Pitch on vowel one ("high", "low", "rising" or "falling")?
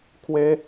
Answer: high